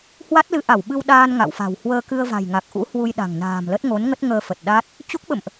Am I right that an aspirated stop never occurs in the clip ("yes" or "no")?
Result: yes